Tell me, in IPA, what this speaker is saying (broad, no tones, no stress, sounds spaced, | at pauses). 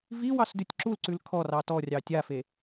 v i w ɑ s d ʉ tʲ ǁ u l ǀ ʉ l kʰ ɔ r ɑ t ɔ rʲ ɑ tʲ a f e